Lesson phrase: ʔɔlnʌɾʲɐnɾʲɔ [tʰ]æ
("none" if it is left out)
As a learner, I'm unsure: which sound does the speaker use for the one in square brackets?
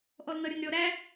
ɾ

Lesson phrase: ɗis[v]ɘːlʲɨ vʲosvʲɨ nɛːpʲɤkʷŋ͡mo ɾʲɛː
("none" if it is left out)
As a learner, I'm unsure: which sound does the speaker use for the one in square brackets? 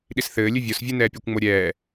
θ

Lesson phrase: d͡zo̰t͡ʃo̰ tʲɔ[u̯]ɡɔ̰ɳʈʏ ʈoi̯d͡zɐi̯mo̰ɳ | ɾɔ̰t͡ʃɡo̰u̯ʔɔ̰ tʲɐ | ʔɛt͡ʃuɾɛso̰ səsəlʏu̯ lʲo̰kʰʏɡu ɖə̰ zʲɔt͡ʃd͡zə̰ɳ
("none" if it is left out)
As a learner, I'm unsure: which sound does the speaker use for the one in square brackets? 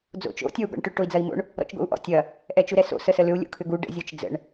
u̯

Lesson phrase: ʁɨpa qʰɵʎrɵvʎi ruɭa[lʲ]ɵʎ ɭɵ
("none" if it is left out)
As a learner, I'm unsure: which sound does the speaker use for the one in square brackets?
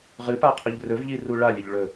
lʲ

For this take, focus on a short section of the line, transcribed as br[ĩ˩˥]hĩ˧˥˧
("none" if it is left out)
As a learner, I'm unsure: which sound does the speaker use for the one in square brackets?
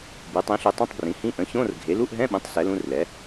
ĩ˩˥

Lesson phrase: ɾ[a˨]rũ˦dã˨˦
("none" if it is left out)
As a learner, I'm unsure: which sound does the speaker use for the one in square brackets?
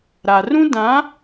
a˨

